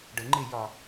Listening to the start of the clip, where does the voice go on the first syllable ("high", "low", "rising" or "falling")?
rising